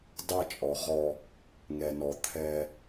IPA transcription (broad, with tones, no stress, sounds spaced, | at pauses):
d ɑ˦˨ t͡ʃʼ ɔ˨˦ ʁ ɔ˦ | ŋ ɛ˨ n ɔ˨ t̪ʰ ɛ˦